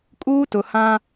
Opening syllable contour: high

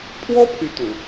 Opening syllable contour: high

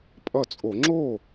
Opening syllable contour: falling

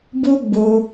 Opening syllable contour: high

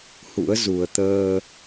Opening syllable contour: rising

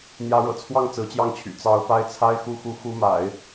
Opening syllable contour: rising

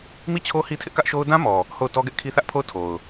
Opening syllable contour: falling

